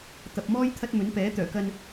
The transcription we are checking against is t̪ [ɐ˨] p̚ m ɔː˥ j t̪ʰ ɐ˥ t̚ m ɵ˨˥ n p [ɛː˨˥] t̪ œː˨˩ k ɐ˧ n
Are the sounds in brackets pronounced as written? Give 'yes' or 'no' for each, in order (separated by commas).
yes, yes